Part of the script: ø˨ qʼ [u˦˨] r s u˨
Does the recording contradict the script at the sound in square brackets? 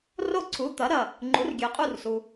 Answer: no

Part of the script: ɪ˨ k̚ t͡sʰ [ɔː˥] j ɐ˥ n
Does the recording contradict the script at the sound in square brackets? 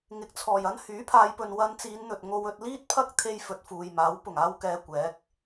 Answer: yes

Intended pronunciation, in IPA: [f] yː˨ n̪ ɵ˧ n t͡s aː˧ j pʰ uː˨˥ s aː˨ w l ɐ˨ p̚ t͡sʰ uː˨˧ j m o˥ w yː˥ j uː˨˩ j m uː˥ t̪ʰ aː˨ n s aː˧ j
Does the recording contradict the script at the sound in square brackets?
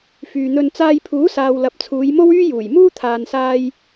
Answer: no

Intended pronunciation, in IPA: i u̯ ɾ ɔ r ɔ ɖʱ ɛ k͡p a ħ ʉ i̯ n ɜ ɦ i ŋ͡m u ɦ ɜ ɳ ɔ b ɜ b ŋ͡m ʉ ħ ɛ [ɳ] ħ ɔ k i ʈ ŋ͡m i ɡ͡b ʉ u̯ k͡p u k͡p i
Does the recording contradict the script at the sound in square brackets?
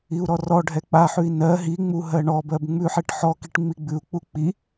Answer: yes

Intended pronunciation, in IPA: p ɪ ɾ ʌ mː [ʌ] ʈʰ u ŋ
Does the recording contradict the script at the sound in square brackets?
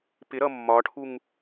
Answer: yes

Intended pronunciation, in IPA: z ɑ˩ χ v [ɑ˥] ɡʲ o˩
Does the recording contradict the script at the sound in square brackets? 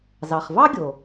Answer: no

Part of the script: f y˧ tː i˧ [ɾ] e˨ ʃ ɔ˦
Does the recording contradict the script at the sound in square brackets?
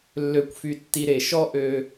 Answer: no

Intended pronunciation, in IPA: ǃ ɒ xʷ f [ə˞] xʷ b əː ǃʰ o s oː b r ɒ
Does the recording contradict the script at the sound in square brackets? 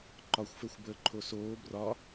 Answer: no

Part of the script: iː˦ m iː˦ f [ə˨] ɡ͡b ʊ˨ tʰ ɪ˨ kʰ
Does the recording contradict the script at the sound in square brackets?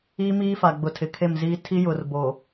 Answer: yes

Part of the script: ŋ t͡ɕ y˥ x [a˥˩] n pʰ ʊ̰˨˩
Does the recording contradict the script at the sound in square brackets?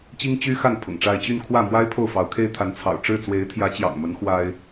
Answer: no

